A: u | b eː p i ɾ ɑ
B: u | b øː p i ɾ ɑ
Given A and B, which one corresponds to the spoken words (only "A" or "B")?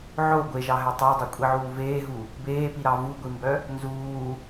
A